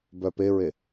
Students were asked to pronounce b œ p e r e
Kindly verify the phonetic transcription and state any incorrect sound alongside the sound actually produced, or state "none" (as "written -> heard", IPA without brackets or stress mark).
r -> ɹ